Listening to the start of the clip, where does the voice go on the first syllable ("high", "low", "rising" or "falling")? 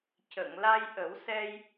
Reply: low